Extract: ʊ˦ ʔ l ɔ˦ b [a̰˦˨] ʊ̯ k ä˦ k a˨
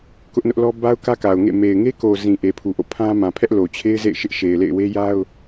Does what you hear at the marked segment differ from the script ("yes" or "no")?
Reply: yes